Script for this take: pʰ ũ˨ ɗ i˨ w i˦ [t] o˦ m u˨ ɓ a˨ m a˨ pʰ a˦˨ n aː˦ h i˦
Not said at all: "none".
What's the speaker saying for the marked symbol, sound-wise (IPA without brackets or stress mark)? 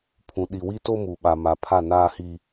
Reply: t